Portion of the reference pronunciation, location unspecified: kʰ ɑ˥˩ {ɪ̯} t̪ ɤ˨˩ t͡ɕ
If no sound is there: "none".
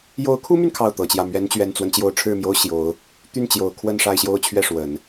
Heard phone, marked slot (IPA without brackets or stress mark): ʊ̯